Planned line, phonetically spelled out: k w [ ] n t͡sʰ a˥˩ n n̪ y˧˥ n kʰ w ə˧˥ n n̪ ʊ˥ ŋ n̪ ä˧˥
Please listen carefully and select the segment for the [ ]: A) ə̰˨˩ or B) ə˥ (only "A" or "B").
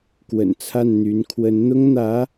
A